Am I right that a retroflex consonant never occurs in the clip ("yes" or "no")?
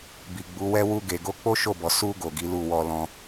yes